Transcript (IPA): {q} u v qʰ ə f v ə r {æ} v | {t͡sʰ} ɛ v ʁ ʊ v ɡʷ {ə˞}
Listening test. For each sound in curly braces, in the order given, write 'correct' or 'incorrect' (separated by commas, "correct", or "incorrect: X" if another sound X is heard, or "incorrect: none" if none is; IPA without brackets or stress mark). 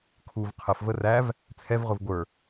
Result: incorrect: kʰ, correct, correct, correct